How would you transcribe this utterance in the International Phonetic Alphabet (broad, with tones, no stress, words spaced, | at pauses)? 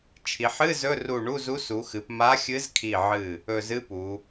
t͡ʃʰi˩˧ħ ɨ˧˥˧ zɵ˧˥˧ru˧˩ɳu˧˥˧zu˧˥ su˩˧xɨ˩˧p ma˧˥xʲɨ˧˥zkʰi˧˩ʕɨ˧˩ | ɵ˧˩zɨ˧˥˧pu˩˧